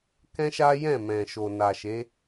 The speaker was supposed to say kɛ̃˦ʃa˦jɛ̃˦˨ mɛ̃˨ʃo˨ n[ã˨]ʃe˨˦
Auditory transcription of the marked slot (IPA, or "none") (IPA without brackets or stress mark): a˨